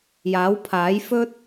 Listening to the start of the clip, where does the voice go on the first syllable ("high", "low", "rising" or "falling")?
rising